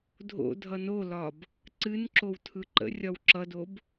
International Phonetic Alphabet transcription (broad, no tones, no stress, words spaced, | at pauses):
dʱo̰dʱʌ nolɒb | ǀɨnǁow tʰɯǃə̰rʲɒw ǁʌdob